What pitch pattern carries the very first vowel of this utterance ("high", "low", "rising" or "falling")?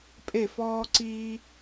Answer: falling